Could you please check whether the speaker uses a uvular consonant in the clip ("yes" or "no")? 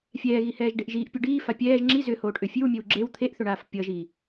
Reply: no